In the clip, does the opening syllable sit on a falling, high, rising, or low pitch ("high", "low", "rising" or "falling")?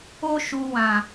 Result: high